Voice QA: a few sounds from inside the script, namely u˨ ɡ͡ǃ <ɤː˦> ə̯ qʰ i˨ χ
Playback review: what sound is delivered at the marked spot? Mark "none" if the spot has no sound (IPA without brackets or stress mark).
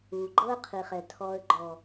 ɤ˦